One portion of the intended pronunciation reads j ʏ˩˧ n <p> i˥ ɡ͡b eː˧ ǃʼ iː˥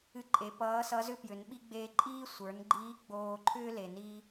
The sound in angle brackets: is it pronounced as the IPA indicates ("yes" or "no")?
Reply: no